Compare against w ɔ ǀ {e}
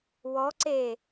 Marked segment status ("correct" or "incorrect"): correct